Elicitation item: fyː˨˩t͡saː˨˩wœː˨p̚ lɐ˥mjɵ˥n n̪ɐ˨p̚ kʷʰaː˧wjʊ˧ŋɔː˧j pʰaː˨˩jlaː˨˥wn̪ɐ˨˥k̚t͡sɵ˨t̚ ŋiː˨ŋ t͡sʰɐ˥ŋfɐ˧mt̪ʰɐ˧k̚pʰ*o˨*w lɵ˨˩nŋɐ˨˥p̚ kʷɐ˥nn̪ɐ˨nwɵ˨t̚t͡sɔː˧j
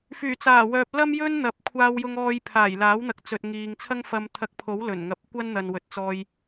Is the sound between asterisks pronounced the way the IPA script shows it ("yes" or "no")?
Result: no